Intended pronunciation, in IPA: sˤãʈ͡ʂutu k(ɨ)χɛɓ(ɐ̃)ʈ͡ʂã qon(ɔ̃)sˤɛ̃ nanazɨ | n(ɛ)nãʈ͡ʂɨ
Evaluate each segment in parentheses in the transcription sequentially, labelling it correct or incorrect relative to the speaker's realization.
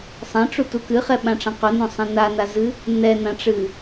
correct, incorrect: ã, incorrect: õ, correct

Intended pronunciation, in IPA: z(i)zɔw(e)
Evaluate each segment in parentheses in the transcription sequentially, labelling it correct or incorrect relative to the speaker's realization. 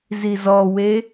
correct, correct

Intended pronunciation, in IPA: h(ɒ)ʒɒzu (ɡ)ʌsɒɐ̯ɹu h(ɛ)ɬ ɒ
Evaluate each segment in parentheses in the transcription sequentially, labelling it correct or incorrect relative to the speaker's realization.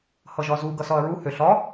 incorrect: ʌ, correct, incorrect: ø

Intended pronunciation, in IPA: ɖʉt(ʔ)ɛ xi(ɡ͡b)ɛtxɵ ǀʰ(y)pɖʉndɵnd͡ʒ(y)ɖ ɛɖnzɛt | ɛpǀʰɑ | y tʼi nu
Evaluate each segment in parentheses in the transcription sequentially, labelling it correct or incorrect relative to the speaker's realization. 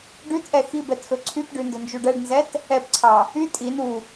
correct, incorrect: b, correct, incorrect: u

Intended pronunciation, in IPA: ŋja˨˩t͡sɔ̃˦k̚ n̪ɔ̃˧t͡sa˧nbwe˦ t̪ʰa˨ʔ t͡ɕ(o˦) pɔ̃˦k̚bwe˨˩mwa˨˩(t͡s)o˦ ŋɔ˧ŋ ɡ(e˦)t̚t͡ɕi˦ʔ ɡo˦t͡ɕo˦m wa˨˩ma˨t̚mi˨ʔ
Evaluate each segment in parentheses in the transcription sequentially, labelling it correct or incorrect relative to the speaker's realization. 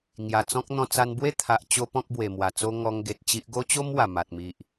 correct, correct, incorrect: e˨

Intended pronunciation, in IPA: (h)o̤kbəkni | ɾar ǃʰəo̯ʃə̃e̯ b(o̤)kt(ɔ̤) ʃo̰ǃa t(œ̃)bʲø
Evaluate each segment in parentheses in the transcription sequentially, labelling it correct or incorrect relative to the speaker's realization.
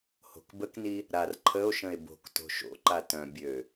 correct, correct, incorrect: o̤, correct

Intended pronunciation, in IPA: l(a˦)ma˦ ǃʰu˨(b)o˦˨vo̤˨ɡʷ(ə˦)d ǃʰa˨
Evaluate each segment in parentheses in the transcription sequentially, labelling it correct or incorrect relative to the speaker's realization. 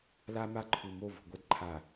correct, incorrect: m, incorrect: ɐ˦

